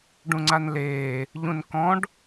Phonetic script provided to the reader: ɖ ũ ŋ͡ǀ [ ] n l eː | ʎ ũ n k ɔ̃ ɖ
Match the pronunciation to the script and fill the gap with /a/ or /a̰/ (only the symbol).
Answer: a